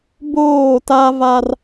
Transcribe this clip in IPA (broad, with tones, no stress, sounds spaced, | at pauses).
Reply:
b oː˦˨ t a˦ v a˦ r